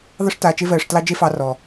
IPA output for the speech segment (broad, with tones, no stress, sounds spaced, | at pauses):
ðˤ ɨ˧ ʂ t aː˨ t͡ʃ e˧ v ɜː˨ ʂ t l ɑ˧ d͡ʒ e˦ f ɑ˧ r ɔ˨